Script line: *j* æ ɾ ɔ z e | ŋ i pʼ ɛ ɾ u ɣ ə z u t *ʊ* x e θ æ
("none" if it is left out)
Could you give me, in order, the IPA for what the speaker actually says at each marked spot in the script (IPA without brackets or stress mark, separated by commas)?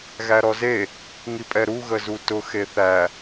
ɣ, ʊ